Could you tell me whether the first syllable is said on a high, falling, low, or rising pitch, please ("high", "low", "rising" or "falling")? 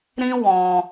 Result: high